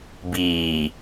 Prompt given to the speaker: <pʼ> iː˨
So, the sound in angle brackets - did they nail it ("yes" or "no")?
no